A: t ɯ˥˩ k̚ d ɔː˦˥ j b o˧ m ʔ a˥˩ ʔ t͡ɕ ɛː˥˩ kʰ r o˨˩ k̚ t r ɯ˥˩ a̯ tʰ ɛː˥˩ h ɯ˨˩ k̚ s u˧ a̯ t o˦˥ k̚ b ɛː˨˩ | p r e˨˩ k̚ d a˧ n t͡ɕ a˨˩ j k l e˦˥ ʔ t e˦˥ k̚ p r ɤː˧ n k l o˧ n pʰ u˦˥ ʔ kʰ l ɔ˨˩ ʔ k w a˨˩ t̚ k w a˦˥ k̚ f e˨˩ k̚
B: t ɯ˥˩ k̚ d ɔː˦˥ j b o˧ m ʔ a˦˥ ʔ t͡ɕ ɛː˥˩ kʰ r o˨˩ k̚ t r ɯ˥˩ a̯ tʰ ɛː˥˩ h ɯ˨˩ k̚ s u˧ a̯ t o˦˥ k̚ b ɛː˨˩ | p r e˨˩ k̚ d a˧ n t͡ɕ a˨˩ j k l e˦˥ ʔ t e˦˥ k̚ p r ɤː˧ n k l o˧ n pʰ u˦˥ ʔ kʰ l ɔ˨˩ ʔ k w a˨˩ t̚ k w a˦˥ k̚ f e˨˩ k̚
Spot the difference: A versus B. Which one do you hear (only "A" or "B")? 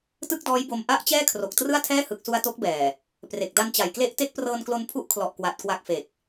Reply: B